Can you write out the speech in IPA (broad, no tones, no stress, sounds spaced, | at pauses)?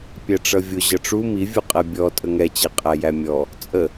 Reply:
pʲ æ ʈ͡ʂ ʌ vʲ ʊ ʑ ʌ ʈ͡ʂ u m i vʲ u qʼ ɛ bʲ ɔ tʼ ə ŋ ɛ t͡ɕ ɛ qʼ æ j æ mʲ ɔ | t͡sʼ ə